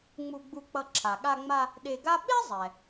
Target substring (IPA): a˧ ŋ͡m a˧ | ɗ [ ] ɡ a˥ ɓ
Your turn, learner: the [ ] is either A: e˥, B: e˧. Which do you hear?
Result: B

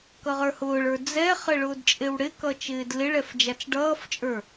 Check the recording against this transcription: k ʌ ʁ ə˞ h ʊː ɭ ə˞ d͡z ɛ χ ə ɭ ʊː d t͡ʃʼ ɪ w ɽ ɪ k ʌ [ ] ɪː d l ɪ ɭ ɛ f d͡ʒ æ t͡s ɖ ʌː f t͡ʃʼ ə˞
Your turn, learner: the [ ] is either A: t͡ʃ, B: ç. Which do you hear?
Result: A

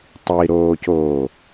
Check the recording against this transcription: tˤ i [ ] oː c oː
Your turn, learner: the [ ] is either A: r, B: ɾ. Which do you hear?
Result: B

